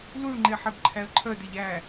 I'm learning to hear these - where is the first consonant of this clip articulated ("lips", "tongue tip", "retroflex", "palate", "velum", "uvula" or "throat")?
tongue tip